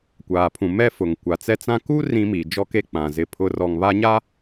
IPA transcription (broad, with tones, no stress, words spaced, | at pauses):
kʷaː˨pʰũ˨ mɛ˦fʊ˨ŋ kʷa˨t͡sɛ˦t͡sã˦ ku˦ rĩ˦mi˨ d͡ʒɔ˦ke˦ k͡pã˨zɪ˦pʰʊ˦ rɔ˨ŋβa˦ɲa˦